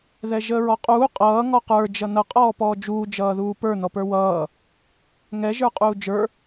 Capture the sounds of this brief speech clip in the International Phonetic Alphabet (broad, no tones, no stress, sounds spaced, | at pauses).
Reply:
ð ɛ ʒ əː ɹ ɔ qʼ uː qʼ ʌː ŋ ɔ q ə˞ d͡ʒ ʌ n ʌ qʼ ɔː p ɔː d͡ʒ uː d͡ʒ ʌː ð uː p ə˞ n ɔ p ə˞ w ʌː | ŋ ɛ ʒ ə˞ qʼ uː d͡ʒ ə˞